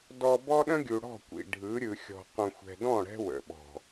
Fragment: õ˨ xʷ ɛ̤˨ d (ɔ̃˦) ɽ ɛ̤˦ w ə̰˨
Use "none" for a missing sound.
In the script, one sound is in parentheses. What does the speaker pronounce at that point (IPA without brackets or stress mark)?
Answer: ɔ̃˦˨